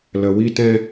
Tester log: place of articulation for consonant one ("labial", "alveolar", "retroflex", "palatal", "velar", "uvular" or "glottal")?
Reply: alveolar